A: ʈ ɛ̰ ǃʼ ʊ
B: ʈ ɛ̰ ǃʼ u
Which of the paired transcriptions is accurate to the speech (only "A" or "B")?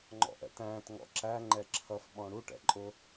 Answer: A